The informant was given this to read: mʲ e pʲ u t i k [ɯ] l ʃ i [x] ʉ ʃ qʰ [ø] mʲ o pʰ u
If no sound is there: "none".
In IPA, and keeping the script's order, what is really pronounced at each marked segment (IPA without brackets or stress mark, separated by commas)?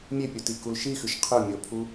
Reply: u, x, ɵ